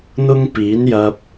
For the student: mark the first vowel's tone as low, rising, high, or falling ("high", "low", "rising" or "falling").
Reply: high